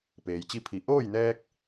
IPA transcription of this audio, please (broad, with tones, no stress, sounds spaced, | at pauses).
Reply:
p eː˩ j t͡ɕ i˥˨ pʰ i˩˧ ʔ oː˥˨ j n ɛː˧ k̚